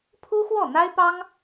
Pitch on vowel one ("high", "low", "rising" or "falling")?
high